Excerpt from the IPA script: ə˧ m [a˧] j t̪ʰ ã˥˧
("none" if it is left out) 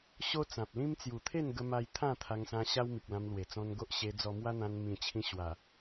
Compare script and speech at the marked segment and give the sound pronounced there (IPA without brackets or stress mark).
a˧